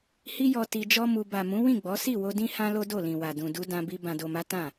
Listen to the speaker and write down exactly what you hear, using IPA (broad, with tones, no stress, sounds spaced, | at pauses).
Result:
h i˦ j ɔ˧ t i˧ d͡ʒ ɔ˦ m u˧ b a˨ m ũ˨˦ w ĩ˦˨ ɡ͡b ɔ˨˦ s i˦˨ w o˧ d ĩ˦ h ã˦ l o˦ d o˦˨ l ĩ˨ w a˨ d ũ˨ d u˧ d ã˧ b i˧ b ã˨ d o˨ m a˨˦ t ã˦˨